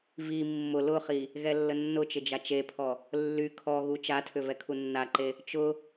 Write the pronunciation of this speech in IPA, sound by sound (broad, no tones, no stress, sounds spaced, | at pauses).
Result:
v i mː ʊ l ʊ χ i | ɣ ɛ lː ə nː ʊ t͡ʃ ɪ d͡ʒ a t͡ʃ e pʰ ɔ | lː y kʰ ɔ ɣ u t͡ʃ a tʰ ʏ v ɛ kʰ u nː a ǃ e | t͡ʃ ʊ